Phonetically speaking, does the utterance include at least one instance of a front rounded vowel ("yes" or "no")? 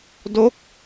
no